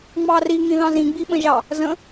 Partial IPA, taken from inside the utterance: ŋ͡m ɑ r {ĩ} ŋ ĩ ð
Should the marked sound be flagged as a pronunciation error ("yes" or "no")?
yes